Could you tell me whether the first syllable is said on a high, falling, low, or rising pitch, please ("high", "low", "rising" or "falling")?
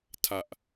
low